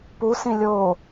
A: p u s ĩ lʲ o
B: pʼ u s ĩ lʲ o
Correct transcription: A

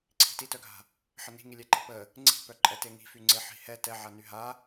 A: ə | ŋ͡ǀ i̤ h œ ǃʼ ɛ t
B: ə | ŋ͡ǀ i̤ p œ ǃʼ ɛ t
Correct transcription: B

